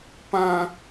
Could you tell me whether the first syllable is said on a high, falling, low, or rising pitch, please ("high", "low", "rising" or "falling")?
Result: high